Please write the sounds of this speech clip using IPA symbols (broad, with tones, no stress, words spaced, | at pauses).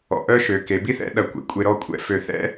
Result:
ɔ̰˩˧ʔœ˥ʃø˩˧ ke˩˧bi˥θɛ̰˥˧ ɗɐ˧˩kʷḛ˩˧kʷʼe˧ ɾɔ˥˧ kʷʼɛ̰˧ fø˧˩θɛ̰˥